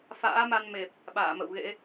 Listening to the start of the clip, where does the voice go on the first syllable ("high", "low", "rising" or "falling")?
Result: rising